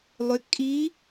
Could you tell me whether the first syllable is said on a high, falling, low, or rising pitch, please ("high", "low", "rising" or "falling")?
rising